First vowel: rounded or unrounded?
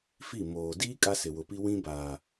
unrounded